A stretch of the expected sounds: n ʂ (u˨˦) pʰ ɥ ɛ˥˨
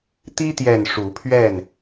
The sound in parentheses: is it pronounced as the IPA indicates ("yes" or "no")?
yes